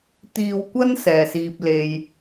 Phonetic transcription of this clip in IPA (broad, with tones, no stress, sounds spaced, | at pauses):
t̪ iː˨ w kʷ ɐ˥ n s ɛː˨˩ s iː˧ p̚ l e˧ j